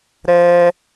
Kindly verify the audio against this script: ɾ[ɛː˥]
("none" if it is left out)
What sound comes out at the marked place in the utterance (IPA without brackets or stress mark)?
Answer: ɛː˥